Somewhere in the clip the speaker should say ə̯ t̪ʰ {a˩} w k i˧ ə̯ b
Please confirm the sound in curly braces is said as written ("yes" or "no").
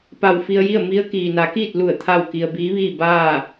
no